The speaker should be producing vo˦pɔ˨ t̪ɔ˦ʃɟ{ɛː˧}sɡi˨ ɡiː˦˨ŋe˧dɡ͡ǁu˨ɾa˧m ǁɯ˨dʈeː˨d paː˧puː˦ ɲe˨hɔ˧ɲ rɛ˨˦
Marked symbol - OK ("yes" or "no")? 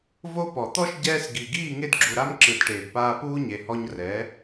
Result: yes